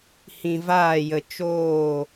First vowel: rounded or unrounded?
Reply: unrounded